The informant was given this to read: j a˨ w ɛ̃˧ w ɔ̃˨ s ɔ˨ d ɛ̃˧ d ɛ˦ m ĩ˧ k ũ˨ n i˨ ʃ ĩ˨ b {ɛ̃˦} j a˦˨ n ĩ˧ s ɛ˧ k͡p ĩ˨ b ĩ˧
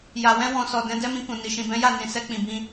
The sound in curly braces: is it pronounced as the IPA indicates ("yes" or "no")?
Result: no